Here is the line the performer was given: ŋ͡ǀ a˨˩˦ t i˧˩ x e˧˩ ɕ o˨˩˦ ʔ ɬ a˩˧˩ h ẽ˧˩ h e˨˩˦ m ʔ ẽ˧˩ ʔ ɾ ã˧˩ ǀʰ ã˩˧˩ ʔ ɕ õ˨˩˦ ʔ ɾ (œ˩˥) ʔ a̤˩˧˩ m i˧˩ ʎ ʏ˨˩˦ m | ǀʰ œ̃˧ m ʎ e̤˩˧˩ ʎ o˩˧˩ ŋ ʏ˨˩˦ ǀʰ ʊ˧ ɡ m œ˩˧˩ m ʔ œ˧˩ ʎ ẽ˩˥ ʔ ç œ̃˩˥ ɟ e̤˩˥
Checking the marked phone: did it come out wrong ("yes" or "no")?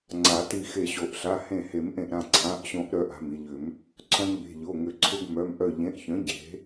no